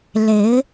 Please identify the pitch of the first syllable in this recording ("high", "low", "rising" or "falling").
rising